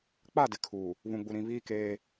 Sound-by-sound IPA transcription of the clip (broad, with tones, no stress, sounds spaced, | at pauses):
k͡p a˦˨ d ɪ˨ kʰ uː˨ | β ũ˨ ɡ͡b u˨ ɾ ĩ˨ β iː˦ k eː˦